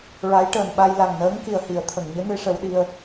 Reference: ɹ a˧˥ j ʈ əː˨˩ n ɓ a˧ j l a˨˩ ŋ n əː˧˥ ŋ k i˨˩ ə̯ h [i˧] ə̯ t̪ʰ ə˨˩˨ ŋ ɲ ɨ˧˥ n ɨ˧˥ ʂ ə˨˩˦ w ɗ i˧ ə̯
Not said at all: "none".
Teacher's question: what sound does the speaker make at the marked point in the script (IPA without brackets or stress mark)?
i˨˩˨